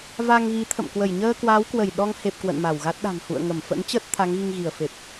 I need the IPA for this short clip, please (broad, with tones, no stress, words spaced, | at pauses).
va˧ŋ ɣi˨˦t̪ʰə̰˧˨m kwə˧˩jɲəː˧kwaː˨˦wkwə˧˩j ɗɔ˧ŋhe˨˩p̚ kwə̰˧˨nma˧˩wɣa˦˥t̚ ɗa̤˨˩ŋhṵ˧˨ə̯ŋə˧˩m fə̰˧˥nt͡ɕə˦˥t̚ t̪ʰa˨˦ŋɣi˧ŋɣi˧˩ə̯fe˨˩p̚